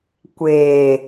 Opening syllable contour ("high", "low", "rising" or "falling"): low